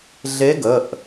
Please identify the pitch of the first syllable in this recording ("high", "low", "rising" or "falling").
rising